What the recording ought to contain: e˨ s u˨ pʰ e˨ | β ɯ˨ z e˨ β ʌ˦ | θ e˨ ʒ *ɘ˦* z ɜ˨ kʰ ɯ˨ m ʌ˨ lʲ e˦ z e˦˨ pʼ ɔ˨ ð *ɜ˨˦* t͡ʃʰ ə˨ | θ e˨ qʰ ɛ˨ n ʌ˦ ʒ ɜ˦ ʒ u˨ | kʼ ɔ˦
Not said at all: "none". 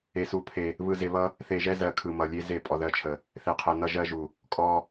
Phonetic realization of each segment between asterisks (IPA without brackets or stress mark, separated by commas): ɛ˦, ɜ˨˦